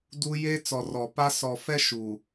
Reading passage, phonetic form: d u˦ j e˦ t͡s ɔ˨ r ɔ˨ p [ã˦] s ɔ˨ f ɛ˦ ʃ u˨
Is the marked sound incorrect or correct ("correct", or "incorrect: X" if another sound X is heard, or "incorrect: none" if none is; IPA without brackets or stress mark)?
incorrect: a˦